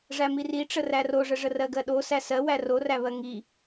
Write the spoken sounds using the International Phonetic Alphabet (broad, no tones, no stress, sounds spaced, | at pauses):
ʐ æ m i r i ʈ͡ʂ ə r æ r o ʐ ə ʐ ə r ɜ ɡ ɜ ɗ o s æ s ɜ w æ r o r æ β ɜ ŋ i